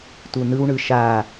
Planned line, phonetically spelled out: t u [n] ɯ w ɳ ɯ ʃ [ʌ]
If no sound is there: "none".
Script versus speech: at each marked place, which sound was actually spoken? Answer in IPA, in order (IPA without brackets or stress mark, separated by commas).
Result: n, a